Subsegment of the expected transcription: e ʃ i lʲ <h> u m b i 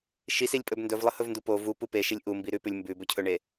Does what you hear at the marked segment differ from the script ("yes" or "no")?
yes